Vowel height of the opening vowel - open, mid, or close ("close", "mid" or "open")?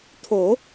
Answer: mid